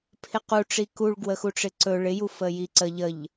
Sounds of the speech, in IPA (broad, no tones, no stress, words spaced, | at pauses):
pʰɪqu ʈ͡ʂikuɭ ɡwəxuʈ͡ʂɪǀɵ ɭɪju fəjiǀə ʎəʎ